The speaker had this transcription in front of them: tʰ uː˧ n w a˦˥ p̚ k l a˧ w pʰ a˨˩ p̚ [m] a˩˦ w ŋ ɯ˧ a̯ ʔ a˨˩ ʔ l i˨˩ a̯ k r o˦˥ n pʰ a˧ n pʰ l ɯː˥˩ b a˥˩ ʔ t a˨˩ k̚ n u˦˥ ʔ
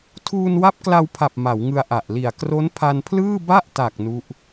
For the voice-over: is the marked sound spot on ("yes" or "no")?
yes